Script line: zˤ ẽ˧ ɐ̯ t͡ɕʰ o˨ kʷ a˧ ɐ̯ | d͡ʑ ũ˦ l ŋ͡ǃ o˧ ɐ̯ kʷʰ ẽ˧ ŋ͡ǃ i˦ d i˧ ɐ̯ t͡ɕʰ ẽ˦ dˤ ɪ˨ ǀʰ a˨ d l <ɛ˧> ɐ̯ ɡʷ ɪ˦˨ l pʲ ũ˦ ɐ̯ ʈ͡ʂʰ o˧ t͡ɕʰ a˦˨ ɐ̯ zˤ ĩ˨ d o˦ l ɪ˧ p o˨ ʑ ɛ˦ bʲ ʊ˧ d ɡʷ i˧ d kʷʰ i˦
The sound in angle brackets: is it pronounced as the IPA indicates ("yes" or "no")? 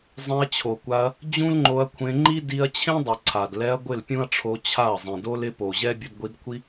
yes